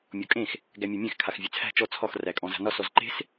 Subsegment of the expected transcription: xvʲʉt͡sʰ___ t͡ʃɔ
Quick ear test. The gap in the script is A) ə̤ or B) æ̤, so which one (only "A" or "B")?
B